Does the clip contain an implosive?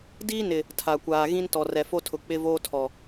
no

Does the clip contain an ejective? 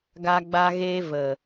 no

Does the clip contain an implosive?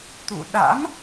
yes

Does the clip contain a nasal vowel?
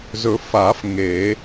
no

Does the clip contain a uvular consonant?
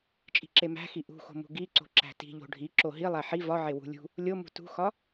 no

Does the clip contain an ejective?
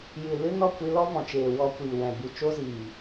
no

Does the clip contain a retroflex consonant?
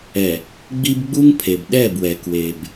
no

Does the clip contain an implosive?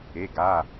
no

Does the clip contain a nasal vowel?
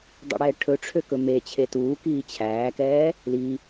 no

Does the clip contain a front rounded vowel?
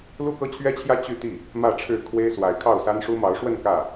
yes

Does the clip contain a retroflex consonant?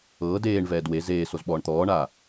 yes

